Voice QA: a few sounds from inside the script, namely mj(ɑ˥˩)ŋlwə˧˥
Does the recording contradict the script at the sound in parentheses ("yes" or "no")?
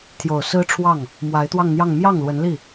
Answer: no